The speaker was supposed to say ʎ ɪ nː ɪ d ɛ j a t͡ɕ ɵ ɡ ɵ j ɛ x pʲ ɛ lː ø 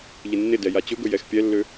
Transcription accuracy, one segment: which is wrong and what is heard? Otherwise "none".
none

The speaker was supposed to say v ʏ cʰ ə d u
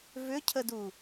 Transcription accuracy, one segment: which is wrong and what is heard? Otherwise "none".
none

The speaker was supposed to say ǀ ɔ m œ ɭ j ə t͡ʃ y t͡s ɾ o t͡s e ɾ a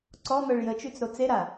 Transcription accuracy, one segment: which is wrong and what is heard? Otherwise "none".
none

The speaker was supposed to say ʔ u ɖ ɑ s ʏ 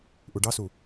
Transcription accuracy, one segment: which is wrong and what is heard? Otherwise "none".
ʏ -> u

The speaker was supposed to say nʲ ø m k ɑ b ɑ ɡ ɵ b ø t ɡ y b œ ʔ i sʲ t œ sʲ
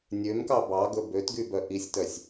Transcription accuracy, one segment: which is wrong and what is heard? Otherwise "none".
none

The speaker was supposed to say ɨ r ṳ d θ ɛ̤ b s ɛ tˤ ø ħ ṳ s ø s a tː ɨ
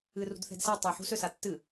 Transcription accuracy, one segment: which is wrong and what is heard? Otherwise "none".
b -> d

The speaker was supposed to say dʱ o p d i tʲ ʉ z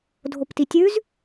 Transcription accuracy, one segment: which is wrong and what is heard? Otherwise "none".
d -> t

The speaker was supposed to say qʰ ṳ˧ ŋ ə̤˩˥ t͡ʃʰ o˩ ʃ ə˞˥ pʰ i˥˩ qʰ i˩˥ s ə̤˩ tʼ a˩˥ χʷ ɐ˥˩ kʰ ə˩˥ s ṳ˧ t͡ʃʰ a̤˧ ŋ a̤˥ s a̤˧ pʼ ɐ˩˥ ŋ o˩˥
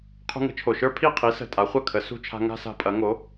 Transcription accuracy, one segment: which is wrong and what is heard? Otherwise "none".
none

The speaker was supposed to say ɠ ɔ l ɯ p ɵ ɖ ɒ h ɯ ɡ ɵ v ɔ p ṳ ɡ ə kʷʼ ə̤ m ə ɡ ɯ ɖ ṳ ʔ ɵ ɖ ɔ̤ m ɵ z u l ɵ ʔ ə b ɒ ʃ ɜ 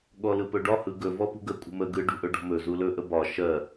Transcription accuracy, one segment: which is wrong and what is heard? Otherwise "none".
none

